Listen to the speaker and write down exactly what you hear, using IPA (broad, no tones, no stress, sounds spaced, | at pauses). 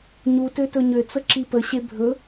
ɲ u t ø t ɵ ɲ ø t͡s ə ǁ i p ə ɕ e bʱ ɵ